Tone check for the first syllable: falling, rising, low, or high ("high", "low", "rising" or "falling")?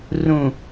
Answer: low